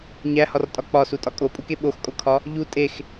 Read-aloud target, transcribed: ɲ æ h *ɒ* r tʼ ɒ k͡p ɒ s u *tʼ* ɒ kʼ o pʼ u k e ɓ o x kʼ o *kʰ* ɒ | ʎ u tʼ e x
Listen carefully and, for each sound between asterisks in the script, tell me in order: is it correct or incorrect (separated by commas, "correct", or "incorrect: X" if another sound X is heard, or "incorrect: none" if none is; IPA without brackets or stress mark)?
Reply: correct, correct, correct